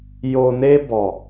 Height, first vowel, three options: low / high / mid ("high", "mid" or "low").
mid